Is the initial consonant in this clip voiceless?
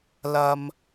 no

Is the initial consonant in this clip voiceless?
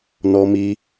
no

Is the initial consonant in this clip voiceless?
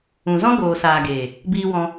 no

